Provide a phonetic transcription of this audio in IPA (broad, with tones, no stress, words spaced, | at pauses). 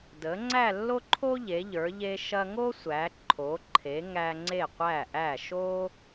də˩˧ ŋ͡ǀæ˥˧lːo˥ǃʰo˥ ʎe˩˧ʎə˞˩˧ ʎe˧ʃɐ˧ŋo˥sʷæ˩˧ ǃʰo˩˧ǃʰe˩˧ ŋæ˧ ŋ͡ǀe˧˩qʷæ˧˩ʔæ˧˩ ʃo˧